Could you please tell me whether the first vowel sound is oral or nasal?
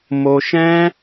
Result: oral